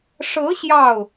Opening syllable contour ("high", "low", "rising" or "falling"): rising